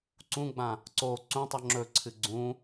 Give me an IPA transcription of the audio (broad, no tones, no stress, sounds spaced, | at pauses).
ǀ ũ ɡ͡b ã | ǀ o ǀ ũ tˤ ʉ ŋ͡ǁ ɵ ǀʰ ɨ ɡ͡ǀ ũ